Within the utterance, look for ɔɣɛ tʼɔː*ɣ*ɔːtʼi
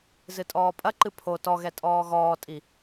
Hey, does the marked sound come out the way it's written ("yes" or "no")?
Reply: yes